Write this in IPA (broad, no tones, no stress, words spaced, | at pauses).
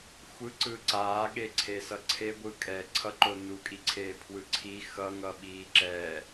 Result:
xʷɯ ǀɯǀaːɠeǀʰe sʌǀʰeɡʷɯ kʼɛ ǀʰʌǃo nukʼiǀʰeː pʰwɯǀʰi xʌŋʌ ɓiːǁɛ